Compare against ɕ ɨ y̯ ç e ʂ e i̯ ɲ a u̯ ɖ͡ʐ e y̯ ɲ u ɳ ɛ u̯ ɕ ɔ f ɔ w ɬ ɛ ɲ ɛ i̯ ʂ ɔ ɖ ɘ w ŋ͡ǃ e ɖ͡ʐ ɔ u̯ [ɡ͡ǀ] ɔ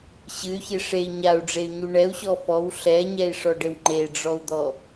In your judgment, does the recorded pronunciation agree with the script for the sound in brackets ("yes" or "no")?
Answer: no